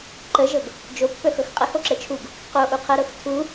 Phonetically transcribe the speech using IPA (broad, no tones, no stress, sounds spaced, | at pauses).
ǃ ə ʒ ɤ ɡ | d͡ʒ o pː œ x ɤ x qʼ ə h o ǁ ə t͡ʃʰ u ɡ | q o ʔ u qʰ ɤ ɾ ɤ x tʰ u